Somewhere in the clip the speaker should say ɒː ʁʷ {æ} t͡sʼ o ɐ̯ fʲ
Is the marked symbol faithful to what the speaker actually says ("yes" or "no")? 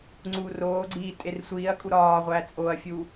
yes